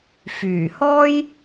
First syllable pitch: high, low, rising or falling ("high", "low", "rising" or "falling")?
low